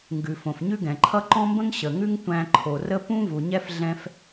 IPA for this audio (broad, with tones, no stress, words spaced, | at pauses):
ŋɡʉ˩fõ˩f ɲʉ˥ɡɛ̃˩ǃʰʌ˥ ǃɔ̃˥mbə̃˥ŋ ɕə˩ŋʉ˥ŋtʷæ̃˧ ǃʰo˩rə˥ pũ˥ vu˩ɲɛ˥f ɮɛ̃˧f